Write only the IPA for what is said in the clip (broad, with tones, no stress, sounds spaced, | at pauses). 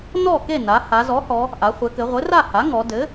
n ɔ˥˨ k e˥˨ n a˩˧ h a˩˧ z ɔ˩˥ h ɔ˩˧ | ʔ a˩˧ χʷ ɘ˩˧ k ɘ˩˧ ʁʷ ɘ˩˥ r a˥˨ h a˩˥ ŋ ɔ˩˧ d ɘ˩˥